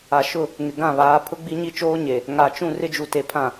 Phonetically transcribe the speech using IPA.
a˨ʃʊ˦˨ | ŋɪ˨ ɡã˦˨βaː˨˦pʰʊ˦ ɡ͡bi˦ɲi˦t͡ʃoː˦ ɲe˨ | ŋa˨t͡ʃũ˦˨ rɪ˦d͡ʒu˨te˨ pʰã˨

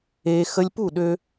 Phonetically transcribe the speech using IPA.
eː˧ xə˧lʲpu˦˨ɗø˧

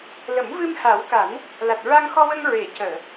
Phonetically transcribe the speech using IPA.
lə˨˩˦mvɨ˧mha˨˩˦wka˨˩˦n | la˨˩t̚ɹa˧ŋxɔ˧wə˧ŋ ɹe˨˩˨cəː˨˩˨

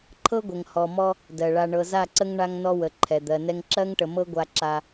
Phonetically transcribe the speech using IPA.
ǃʰɤ˦ɡʷə˨ŋhɔ˨mɔ˦ | dɜ˨ ɭa˨ɳɤ˨ za˦˨ǀə˦ŋ ɳa˦ŋnɔ˦wə˨ ǃʰɛ˨d̪ɜ˨nɛ˦ŋ ǁɜ˦ŋʈə˨mɤ˦ ɡʷa˦ǁa˦

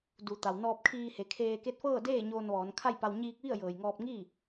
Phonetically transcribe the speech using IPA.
du˩˧t̪a˩w nɔː˧p̚kʰiː˧he˩˧ kʰeː˧ ke˧˥t̚fɤː˥˨ deː˥˨ ɲoː˧nʋɔː˩˧n kʰa˥˨jpa˧w ɲiː˧k̚ʋi˥˨ə̯ jɤː˩jŋɔː˧p̚ŋiː˥˨

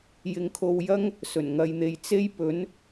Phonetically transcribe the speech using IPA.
jɪ˧ŋkʰo˧wjɐ˥ŋ | sɵ˨˩nŋɐ˧jn̪e˧j t͡se˥jpɵ˨˥n

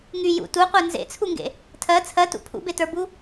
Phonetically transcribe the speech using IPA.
ŋy jṵ tuqʷə˞ nzḛt͡sʰuŋɡḛ | tʰɜ t͡sʰɜtṵ pʰṵbetə˞bu

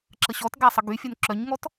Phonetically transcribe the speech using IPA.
ǁəɕɔtɡa sˤəɡyfʲœn ǁœɲŋɔt

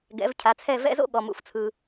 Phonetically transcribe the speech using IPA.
ɡɛ̰˩˥vcʰa˩˥t͡sʰɛ˥˩ vɛ̰˥zo̰˥ ɠɔ˩ mṵ˩ft͡sʰɯ˩

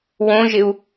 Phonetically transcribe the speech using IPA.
wõʒɪu̯

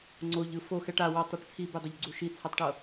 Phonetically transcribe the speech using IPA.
ŋ͡ǀoʎɯ foxɛʈ a watˤɛʈ t͡sʰibedˤeʎɡ͡ǀu ʃit͡sʰatˤʈɤ

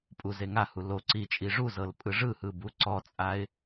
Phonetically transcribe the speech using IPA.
pʼuzeŋahu lo ǀi t͡ʃʼiʐuzɤl pʼɯʐɯhɯ buǀɔt͡sʼaɪ̯

